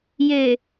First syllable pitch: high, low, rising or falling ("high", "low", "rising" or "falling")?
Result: low